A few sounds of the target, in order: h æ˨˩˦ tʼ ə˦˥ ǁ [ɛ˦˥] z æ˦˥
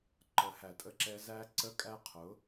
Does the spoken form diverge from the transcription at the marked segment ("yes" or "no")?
no